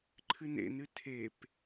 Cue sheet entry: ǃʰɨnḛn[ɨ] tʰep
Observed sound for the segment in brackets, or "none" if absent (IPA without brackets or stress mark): ɨ